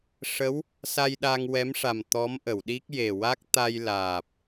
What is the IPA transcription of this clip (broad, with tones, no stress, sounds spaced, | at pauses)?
ʂ ə˧˥ w | s a˧ j ɗ a˧ ŋ w ɛ˧˥ m ʂ a˨˩ m t̪ ɔ˧˥ m ʔ ə˨˩˨ w ɗ i˦˥ k̚ j e˨˩ w a˦˥ k̚ t̪ a˧ j l aː˨˩ p̚